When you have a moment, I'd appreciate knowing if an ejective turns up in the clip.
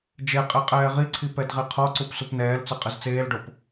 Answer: yes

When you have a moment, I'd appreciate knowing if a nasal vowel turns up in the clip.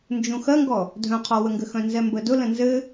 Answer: yes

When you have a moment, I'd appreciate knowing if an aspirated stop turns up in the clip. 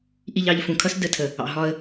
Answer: yes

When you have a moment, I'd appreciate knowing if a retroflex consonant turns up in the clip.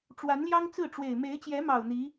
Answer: yes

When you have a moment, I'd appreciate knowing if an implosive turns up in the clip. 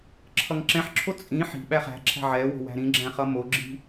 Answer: yes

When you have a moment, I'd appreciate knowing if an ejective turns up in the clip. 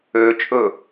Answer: yes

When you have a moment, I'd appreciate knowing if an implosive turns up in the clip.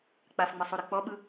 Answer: yes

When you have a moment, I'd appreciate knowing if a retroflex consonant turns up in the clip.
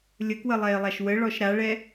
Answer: yes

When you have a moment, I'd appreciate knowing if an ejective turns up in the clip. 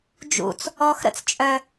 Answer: yes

